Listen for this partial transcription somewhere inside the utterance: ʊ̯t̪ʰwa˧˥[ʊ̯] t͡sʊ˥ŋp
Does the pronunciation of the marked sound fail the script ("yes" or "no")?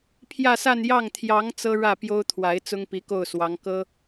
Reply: yes